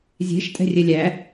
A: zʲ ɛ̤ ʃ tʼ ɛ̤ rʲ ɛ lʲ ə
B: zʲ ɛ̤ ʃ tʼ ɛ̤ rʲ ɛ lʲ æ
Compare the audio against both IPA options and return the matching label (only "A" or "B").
B